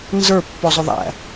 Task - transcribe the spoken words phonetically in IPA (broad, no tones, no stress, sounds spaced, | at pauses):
n z ə˞ pː ɔ zˤ ʊ ðˤ æ̰